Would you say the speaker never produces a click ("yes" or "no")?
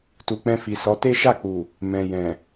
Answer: yes